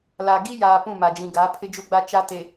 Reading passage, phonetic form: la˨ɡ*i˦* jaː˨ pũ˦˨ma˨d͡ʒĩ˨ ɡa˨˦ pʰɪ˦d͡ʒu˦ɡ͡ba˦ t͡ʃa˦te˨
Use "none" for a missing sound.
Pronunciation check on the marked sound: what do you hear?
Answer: i˦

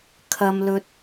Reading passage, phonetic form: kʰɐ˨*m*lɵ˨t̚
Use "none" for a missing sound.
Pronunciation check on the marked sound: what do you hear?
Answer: m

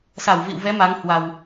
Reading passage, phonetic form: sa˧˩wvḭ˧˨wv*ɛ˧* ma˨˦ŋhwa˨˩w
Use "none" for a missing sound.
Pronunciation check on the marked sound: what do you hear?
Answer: ɛ˨˦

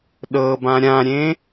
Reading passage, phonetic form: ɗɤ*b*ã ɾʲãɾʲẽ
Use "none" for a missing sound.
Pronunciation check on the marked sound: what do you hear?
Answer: b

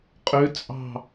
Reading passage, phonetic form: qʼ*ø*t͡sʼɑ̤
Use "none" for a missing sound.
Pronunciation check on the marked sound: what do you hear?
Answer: ø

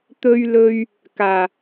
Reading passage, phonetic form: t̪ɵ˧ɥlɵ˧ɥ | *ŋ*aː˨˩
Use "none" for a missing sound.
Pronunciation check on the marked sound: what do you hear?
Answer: k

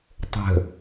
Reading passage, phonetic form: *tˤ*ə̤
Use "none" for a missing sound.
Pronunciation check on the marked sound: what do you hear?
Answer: tˤ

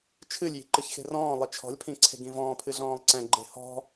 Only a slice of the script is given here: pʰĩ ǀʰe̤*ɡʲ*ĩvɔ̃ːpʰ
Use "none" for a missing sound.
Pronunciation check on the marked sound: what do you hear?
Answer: ɡ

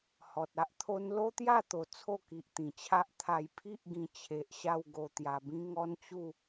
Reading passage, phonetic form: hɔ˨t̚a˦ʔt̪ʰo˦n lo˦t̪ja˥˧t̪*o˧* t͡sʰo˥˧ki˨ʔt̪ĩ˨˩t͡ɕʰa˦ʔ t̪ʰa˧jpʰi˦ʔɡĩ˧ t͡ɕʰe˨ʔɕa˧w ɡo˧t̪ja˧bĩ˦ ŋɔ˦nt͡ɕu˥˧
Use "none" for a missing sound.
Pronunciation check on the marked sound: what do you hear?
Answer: o˨˩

